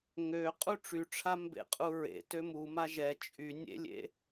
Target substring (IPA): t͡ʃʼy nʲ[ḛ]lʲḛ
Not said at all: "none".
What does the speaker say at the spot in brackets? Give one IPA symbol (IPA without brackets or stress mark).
ḛ